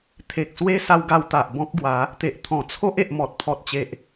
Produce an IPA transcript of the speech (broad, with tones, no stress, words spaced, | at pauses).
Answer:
t̪ʰe˨k̚swe˦ sa˧wɡa˧wt̪a˨ʔ bɔ̃˦k̚ɡwa˨˦ | t̪e˨ʔt̪ʰɔ̃˨˩t͡sʰo˦ʔ e˨ʔmɔ˨t̚pʰɔ˨t̚t͡ɕe˨ʔ